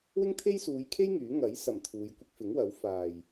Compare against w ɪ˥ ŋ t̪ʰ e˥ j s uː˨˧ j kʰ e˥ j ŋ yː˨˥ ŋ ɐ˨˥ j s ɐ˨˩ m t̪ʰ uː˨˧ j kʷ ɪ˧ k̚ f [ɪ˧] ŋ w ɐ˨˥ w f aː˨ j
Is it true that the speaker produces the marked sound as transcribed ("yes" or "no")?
no